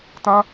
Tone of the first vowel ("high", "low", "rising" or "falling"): high